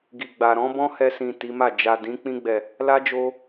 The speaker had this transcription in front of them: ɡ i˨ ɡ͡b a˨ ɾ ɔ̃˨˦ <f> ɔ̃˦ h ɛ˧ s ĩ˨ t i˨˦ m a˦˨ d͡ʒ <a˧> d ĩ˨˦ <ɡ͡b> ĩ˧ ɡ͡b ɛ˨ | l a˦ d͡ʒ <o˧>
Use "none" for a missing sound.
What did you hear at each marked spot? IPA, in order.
b, a˨, k͡p, o˧

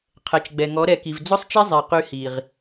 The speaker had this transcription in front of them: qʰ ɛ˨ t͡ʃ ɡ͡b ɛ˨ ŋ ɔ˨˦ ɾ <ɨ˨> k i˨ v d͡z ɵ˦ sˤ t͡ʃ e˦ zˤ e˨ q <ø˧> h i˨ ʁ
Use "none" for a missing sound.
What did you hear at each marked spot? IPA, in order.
ɛ˨, y˧

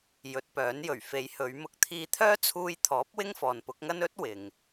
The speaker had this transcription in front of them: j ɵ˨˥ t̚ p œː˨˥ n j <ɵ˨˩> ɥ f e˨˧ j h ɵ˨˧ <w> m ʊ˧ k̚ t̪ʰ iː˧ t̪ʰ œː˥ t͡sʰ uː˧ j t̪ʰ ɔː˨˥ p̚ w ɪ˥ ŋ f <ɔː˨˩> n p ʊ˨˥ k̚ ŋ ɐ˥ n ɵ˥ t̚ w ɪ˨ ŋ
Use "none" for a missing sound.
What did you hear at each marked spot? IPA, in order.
ɵ˨˩, ɥ, ɔː˨

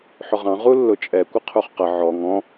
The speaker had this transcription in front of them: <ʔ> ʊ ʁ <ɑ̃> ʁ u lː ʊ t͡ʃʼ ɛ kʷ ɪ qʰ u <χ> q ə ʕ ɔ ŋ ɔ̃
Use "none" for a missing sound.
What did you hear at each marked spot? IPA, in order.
ħ, ɑ̃, χ

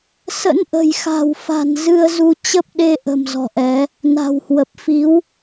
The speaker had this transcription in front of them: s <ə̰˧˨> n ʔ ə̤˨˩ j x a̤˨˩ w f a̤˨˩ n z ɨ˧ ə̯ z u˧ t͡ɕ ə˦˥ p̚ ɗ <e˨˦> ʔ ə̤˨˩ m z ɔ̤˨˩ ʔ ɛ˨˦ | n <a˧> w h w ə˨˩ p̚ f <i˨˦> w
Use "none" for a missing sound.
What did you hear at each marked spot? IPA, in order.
ə̰˧˥, e˧, a̤˨˩, i˨˦

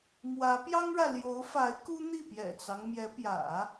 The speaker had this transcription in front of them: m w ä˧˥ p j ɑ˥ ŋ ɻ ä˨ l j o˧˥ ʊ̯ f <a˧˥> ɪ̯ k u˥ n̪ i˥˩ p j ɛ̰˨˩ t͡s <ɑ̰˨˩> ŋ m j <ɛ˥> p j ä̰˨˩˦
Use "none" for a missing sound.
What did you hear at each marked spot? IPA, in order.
a˧˥, ɑ˦, ɛ˧˥

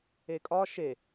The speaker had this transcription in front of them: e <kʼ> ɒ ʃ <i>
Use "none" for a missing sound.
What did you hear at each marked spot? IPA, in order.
kʼ, e

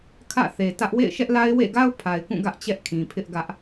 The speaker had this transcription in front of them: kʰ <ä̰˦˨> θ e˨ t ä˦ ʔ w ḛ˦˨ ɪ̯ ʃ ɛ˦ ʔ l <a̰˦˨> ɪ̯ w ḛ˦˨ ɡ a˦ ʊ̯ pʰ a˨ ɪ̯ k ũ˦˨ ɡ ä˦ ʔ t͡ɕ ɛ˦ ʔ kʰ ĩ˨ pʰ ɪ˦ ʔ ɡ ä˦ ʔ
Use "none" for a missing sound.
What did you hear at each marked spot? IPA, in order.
ä̰˦˨, a˦

